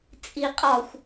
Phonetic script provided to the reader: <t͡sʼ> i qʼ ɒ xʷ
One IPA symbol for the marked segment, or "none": t͡sʼ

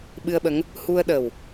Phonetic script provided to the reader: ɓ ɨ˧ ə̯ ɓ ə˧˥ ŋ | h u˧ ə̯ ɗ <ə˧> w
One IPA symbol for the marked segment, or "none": ə˨˩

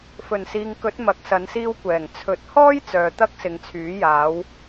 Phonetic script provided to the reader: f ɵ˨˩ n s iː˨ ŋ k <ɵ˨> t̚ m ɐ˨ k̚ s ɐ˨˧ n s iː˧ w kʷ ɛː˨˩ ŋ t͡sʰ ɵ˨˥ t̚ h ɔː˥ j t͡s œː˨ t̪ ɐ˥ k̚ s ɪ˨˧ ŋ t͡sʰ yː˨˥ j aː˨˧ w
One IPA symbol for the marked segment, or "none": ɵ˨˥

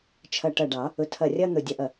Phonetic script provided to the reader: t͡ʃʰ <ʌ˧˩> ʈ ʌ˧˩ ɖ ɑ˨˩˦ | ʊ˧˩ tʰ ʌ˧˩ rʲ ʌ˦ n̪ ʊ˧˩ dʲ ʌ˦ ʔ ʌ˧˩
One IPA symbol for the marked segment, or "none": ʌ˧˩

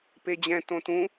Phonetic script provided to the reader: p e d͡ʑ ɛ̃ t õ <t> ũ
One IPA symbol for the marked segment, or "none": t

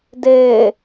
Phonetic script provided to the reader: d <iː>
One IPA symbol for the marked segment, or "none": eː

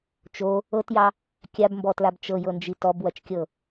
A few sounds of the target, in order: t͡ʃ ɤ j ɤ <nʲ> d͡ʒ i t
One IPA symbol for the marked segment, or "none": n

